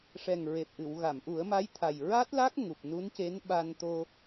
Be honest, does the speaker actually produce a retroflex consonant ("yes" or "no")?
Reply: yes